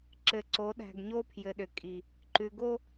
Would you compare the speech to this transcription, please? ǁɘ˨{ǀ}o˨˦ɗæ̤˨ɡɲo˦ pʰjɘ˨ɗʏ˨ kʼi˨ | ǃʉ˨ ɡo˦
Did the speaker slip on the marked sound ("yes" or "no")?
no